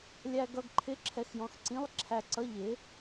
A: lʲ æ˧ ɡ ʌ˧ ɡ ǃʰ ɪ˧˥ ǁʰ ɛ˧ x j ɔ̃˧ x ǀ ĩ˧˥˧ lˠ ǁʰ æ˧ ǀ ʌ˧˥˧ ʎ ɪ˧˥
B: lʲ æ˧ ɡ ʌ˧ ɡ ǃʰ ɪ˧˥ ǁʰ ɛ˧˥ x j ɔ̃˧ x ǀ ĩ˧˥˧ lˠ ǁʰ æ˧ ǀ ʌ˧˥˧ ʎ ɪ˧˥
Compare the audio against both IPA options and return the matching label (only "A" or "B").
A